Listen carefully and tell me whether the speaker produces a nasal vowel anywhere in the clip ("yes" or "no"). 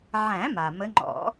yes